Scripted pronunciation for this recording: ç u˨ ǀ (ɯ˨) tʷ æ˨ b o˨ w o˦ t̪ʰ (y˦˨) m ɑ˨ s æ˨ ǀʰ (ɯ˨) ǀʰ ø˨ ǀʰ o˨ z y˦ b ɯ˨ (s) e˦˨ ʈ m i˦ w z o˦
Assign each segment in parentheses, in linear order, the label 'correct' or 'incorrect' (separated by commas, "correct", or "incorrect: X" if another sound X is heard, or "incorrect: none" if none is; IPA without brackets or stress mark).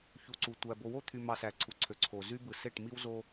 incorrect: u˨, incorrect: y˨, incorrect: u˨, correct